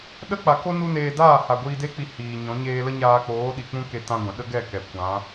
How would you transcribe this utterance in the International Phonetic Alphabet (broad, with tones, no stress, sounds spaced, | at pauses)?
ɗ ə˦ k͡p a˨ k o˦ n u˦ n eː˧ d aː˦˨ h a˨ ɡʷ iː˧ d e˦ k͡p i˧ h iː˨ ɲ ɔ̃˨˦ ɲ eː˧ l ə˦ ɲ aː˧ k͡p oː˨˦ ɗ i˨ k͡p ũ˦ k e˧ t ã˦ ɡʷ ɛ̃˨ ɗ ə˦ ɡ ɛ˦˨ k ɛ˨ kʷ ã˨˦